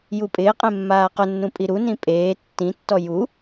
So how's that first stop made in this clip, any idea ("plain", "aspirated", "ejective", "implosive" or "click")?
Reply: ejective